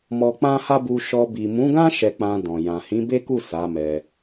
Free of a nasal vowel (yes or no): no